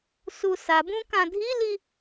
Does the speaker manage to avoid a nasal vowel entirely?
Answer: no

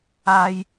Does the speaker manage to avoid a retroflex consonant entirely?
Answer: yes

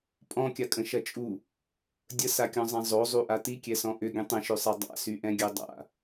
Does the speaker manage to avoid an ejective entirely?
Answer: no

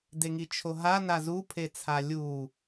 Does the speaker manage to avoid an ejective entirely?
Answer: yes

